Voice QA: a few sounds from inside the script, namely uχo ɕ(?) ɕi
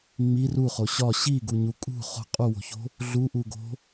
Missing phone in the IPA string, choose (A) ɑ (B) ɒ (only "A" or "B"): B